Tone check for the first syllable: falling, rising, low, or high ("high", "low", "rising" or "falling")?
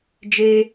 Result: high